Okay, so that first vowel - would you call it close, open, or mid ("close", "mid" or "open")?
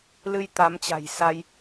close